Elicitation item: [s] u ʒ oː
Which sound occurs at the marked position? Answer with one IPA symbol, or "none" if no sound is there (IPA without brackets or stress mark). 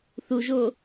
θ